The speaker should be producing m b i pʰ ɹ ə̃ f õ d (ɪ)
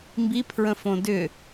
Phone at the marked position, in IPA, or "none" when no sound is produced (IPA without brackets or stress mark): ʏ